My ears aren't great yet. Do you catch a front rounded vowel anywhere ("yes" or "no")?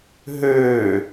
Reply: yes